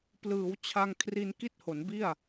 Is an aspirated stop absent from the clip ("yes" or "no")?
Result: no